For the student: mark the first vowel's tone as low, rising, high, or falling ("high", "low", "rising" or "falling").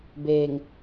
low